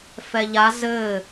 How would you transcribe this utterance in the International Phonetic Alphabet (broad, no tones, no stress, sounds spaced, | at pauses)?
f ɛ ʎ a z ɘ